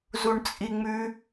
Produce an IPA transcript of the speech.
z u ɳ t͡sʼ i ŋ͡m ʉ

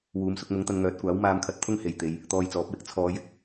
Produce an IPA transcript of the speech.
w uː˨˧ m s ʊ˧ k̚ m ʊ˨˥ ŋ t̪ ɐ˨˧ n ŋ œː˨˥ t̚ kʷ aː˨˥ w m aː˧ m kʰ ɐ˧ t̚ t̪ʰ ʊ˥ ŋ h e˨ j t̪ e˨˧ j | t̪ ɔː˧ j t͡s ɔː˨˥ p̚ w ɪ˥ k̚ t͡sʰ ɔː˨˧ j ɪ˧ k̚

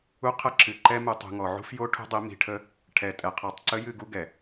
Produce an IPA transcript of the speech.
u˦ qʰ ə˦ ǁ ɨ˨ ǃ ɛ˦ m u˨ tˤ ṳ˨ ŋ ɔ˨ ʕ ṳ˦ f j o˦ ʈʰ ṳ˦ dˤ i˨˦ m i̤˨ ʈʰ ə˦ | ʈʰ ɛ˨ tʼ ɛ˨ qʰ ɔ˨ tˤ ǀ ə˦ j ɨ˦˨ ɡ u˦ ɡ ɛ˨

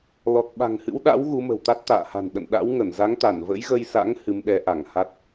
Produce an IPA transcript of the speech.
l ɔ˨˩ t̚ ɓ a̤˨˩ ŋ h ɨ̰˧˥ w ɗ a̰˧˥ w ɣ u˨˦ m ə̤˨˩ w t̪ a˦˥ t̚ t̪ a̰ː˧˨ h a̤˨˩ n ɗ ə̰˧˨ n ɗ a̰˧˥ w ŋ ə˧˩ n z a˨˦ ŋ t̪ a˧˩ n v ə̰˧˥ j ɣ ə˧ j s a̰˧˥ ŋ h ɨ˨˦ m ɗ ɛ˨˦ ʔ a˧˩ ŋ h a˦˥ t̚

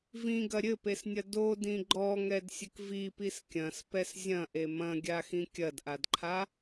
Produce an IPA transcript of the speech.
v ĩ ɡ ɐ ɾʲ ɘ p e s nʲ ɐ d o d ĩ ɡ͡ǃ ɔ ŋ ɛ d sʲ ɘ k v i p i s kʲ ɐ̃ s p ɛ s zʲ ɐ̃ ʔ e m ɐ̃ ɡʲ a x ĩ kʲ ɐ d ʔ a d ǃʰ a

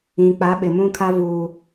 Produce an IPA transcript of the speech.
ĩ˨ k͡p a˨˦ ɓ ɪ˨ m ũ˦ kʰ a˦ v uː˦

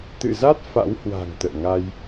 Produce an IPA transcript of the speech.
t̪ ɨ̰˧˨ z a˦˥ t̚ f a̰˧˥ w h w a̤˨˩ ŋ t̪ ə̰ː˧˨ ŋ a˧ j

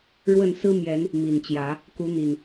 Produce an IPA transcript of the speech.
ɻ w ə˥˨ n s ɹ̩˦ m j ɛ˨˦ n | m i˨˩ n t͡ɕ j ä˨˦ | k u˨˦ n̪ i˨˩ n

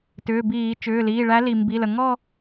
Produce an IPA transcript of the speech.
t ʏː˩˧˩ b iː˧˩˧ t͡ʃ ʏː˩˧˩ l iː˩˧˩ ɭ æ˧˥ l i˩ m b i˩˧˩ l ə˩ ŋ ɔ˥˧

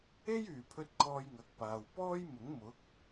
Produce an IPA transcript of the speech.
e˥ j yː˨˩ pʰ ɵ˧ t̚ kʰ ɔː˧ j ŋ ɐ˨ k̚ p aː˨ w p ɔː˥ j m ʊ˨˥ ŋ m ʊ˨˥ k̚

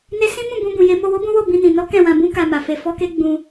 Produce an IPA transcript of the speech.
n e˦ s ĩ˦ m ũ˦˨ b ũ˧ b ũ˨ j e˨˦ m o˧ w o˦ b ũ˦ w o˦˨ b ĩ˧ n ĩ˨ n ɔ˨˦ k ɛ̃˦˨ w ã˧ b ũ˦ k a˧ m a˨ f e˧ f ɔ˦ k e˦ ɡ͡b ũ˧

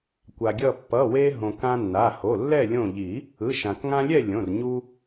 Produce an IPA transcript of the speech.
kʷ a˩ ɡʲ ʌ˧˩ pː ʌ˩˧˩ w e˧ ɦ õ˩ k ã˧ nː a˩˧˩ h o˩˧˩ lː ɛ˥˨ lʲ õ˧˩ ʎ i˨˩˦ | ɯ˩˧˩ ʃ ã˩ k ŋ ã˧ lʲ ɛ˥˨ lʲ õ˩˧˩ r ɲ u˧

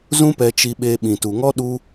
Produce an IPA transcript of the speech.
z ũ˦ p ɛ˧ t͡ʃ i˧ ɓ eː˧ ɓ ĩ˨ t u˨ ŋ ɔ˦ ɗ u˦

